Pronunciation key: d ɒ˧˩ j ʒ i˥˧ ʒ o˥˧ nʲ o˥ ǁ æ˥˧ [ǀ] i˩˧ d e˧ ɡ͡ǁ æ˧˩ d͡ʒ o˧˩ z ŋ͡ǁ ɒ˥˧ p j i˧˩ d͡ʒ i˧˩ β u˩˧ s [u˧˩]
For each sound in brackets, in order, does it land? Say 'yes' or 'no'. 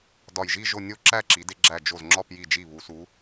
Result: no, no

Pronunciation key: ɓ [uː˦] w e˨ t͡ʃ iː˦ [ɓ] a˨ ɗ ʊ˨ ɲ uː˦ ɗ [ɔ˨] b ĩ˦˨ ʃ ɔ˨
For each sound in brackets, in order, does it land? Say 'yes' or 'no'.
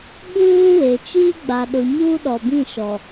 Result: yes, no, yes

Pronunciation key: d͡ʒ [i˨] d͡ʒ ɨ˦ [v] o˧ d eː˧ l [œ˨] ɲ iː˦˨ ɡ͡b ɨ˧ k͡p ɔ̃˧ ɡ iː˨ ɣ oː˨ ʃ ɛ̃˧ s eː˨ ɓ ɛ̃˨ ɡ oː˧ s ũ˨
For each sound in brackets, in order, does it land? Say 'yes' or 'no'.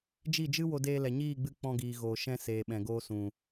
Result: no, no, no

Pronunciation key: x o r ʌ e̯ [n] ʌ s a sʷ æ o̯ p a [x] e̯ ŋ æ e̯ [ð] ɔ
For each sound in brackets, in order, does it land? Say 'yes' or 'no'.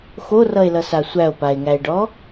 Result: no, no, no

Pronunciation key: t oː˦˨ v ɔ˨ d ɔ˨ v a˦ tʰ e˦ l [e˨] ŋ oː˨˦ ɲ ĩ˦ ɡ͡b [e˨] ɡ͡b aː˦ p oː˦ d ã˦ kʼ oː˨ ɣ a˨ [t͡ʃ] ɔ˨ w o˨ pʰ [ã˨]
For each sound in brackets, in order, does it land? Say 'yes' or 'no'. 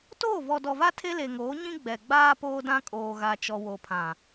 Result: yes, no, yes, yes

